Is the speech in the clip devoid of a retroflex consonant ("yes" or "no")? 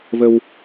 yes